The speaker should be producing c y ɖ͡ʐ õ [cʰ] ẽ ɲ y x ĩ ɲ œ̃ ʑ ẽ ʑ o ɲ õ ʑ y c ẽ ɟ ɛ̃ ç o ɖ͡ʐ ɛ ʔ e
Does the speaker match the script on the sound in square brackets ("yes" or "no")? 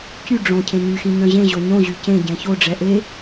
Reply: yes